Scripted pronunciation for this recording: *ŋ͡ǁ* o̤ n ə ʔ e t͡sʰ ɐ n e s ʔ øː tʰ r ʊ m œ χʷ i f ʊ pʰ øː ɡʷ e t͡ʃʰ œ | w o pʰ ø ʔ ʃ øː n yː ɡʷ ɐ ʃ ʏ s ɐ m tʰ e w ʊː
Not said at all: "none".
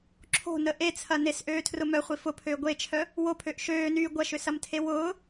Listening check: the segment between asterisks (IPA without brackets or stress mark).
ǁʰ